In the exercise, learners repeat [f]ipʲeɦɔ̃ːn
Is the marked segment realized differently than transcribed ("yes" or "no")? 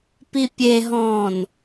yes